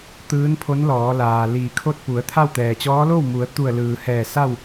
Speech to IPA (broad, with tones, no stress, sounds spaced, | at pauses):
t̪ ɯː˧˥ n pʰ o˧˥ n l ɔː˩˧ l aː˩ l iː˧˩ kʰ o˥˨ t̚ p u˩˧ ə̯ t̪ʰ a˥˨ w t̪ ɛː˩ t͡ɕ ɔː˧˥ l o˥˨ w m u˩˧ ə̯ t̪ u˧˩ ə̯ l ɯː˩ h ɛː˧˩ s a˥˨ w